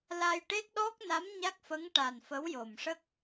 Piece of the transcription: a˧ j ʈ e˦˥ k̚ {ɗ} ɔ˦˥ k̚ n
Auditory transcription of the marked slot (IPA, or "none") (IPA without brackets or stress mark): ɗ